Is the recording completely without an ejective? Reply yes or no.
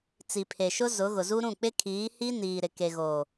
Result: yes